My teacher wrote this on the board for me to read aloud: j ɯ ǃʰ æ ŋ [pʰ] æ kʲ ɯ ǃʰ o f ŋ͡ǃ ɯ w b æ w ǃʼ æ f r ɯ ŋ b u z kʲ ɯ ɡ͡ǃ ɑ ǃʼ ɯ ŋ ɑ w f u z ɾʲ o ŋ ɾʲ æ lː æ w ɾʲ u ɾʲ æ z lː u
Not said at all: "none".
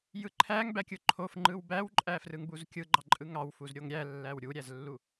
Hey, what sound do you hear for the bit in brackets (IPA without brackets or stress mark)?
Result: b